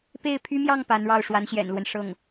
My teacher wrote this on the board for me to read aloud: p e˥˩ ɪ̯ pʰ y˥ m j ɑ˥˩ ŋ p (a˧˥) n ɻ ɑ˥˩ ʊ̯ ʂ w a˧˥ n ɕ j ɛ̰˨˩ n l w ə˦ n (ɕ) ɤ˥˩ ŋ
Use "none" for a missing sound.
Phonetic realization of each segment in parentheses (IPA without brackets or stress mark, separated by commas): a˧˥, ʂ